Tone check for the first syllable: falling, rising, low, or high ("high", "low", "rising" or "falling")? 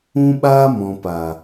high